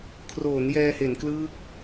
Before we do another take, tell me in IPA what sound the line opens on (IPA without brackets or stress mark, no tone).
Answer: kʰ